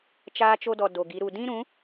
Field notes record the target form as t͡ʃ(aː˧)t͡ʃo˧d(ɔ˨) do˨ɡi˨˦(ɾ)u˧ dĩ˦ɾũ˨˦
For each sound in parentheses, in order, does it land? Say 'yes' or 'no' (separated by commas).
yes, yes, yes